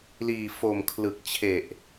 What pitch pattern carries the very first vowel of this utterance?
low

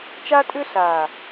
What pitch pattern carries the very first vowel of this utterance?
high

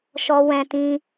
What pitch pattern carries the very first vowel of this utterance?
high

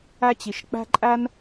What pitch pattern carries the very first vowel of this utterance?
high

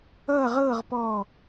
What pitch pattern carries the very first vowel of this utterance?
falling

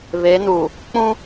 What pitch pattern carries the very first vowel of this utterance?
rising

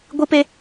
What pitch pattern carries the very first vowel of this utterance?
high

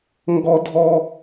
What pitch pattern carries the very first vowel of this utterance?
high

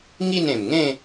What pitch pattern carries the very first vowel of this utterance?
falling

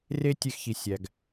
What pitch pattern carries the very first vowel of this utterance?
high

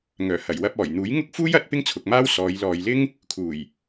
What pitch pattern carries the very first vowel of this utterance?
low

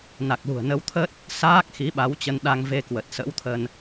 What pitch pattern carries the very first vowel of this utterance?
low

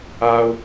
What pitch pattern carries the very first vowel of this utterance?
low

